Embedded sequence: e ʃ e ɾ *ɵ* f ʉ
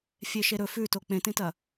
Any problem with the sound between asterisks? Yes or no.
no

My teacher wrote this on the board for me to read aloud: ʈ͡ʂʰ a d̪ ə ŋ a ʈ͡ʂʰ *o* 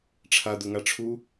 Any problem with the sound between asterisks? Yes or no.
yes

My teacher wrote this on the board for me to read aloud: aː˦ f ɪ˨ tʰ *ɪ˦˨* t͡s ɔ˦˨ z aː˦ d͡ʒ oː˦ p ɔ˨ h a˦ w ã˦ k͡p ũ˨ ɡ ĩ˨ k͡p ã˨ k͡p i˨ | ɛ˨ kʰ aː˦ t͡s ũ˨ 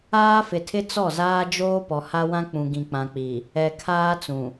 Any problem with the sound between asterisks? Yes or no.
yes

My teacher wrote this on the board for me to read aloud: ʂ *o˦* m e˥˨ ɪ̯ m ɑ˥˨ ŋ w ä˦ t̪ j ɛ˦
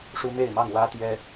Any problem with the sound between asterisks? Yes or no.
yes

